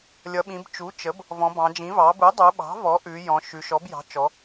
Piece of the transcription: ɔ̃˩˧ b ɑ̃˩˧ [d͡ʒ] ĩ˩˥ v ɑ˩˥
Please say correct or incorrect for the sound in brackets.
correct